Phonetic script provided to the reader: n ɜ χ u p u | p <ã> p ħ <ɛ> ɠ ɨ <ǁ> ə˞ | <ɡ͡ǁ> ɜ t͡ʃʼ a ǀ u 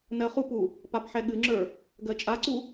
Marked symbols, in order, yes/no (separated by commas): no, yes, no, no